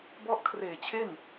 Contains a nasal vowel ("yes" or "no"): no